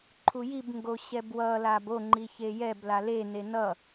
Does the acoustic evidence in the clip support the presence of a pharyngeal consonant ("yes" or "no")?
no